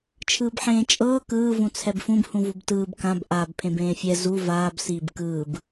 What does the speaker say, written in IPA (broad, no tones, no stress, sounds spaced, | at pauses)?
t͡ʃʰ ɯː b ħ ẽː t͡ʃʼ ɤː k ɯː v ũ t͡sʰ ɛ b f ũ b h ũ v u b t ɯː b k ã b ʔ a b pʰ ẽ b ẽː fʲ ɛ z u v aː b s iː b k ɯː b